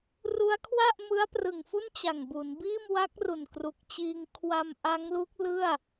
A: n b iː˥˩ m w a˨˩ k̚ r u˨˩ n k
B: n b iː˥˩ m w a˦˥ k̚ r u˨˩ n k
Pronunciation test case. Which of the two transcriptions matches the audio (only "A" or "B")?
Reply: B